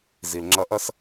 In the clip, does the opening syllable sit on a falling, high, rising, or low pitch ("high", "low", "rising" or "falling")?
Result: low